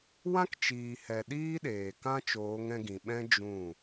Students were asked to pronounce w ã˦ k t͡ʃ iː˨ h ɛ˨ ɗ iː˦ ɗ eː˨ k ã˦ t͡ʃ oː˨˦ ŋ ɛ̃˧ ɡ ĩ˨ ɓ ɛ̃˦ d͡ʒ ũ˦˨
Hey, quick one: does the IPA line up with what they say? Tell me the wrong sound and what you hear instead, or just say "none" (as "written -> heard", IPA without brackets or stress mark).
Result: none